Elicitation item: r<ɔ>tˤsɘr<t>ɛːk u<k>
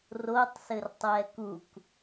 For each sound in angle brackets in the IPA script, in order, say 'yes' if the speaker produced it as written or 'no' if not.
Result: no, no, yes

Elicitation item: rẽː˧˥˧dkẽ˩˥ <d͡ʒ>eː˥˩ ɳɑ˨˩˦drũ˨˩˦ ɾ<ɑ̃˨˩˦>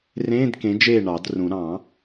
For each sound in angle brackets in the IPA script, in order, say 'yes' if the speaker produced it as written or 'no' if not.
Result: yes, yes

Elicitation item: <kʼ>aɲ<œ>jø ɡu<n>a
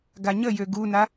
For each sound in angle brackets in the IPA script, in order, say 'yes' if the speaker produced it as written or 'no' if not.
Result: no, no, yes

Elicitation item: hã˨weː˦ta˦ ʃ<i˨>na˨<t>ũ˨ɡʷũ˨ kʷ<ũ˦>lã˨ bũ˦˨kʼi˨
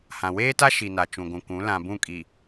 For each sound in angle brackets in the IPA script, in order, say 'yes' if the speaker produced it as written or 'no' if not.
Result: yes, no, no

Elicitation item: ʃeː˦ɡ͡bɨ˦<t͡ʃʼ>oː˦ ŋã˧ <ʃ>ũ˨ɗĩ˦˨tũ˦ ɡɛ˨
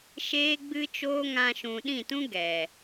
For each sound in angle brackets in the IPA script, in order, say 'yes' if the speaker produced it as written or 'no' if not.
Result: no, yes

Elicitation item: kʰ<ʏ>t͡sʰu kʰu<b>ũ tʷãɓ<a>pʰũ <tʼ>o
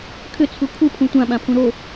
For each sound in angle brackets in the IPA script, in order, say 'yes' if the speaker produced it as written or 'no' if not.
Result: yes, no, no, no

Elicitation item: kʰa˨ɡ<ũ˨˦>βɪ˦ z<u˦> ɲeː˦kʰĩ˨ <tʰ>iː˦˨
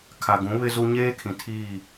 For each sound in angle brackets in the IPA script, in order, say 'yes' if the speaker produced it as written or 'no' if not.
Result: yes, yes, yes

